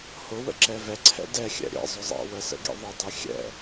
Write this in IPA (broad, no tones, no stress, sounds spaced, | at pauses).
h ʊ w ə̰ ǁ ɛ v ɛ ǀʰ ɛ̰ d ɛ xʲ ɛ̰ ɾʲ ɛ̰ zˤ ʊ zˤ ɛ̰ w ə s ə̰ ɡ ḭ ðˤ ə dˤ i xʲ ɛ̰